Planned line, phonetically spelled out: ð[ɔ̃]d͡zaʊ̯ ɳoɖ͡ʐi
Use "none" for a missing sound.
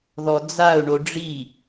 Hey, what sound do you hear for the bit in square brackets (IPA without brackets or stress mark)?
ɔ